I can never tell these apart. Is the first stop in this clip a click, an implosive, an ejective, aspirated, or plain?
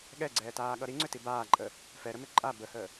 implosive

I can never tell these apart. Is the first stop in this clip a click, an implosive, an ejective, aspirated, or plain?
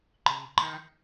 click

